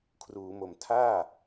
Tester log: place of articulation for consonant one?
velar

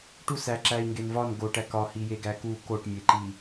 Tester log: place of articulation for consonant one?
retroflex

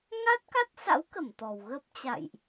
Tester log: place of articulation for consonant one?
velar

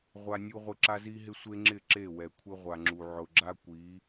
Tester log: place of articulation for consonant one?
uvular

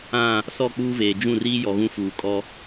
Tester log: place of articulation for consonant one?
alveolar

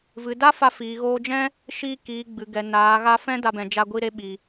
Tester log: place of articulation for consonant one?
labial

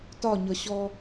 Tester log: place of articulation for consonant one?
alveolar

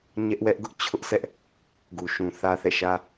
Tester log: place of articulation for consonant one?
palatal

